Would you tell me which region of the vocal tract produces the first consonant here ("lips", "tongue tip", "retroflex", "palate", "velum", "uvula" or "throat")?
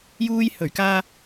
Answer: palate